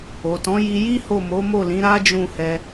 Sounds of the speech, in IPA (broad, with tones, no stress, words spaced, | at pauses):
o˨tɔ̃˨˦ ji˧ji˦ho˦˨ mo˨˦mo˦˨lĩ˨˦ ɾa˦ d͡ʒũ˦˨hɛ˧